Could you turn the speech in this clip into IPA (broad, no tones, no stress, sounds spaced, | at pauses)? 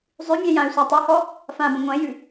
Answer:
zˤ ʉ mʲ ɛ̃ j ã y̯ sʷ a tˤ y h ɔ | f ã b ə̃ ŋʷ ɛ̃ j ʉ